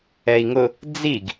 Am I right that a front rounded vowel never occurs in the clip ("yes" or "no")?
yes